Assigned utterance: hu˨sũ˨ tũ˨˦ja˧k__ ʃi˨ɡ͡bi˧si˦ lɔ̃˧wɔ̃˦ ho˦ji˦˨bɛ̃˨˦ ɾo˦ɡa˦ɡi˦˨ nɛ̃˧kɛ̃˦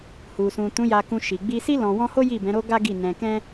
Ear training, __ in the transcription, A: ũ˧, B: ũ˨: A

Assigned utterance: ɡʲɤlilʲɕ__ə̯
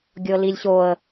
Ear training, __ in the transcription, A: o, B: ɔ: A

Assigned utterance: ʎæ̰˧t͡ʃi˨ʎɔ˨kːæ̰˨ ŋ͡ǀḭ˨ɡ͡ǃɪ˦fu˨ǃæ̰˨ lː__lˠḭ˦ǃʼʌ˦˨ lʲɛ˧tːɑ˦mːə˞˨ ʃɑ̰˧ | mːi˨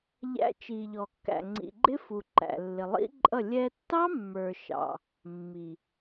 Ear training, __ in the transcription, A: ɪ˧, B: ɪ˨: B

